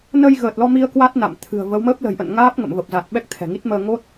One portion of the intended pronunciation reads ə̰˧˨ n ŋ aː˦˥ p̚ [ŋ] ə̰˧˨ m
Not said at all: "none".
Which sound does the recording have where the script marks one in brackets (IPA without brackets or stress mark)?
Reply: ŋ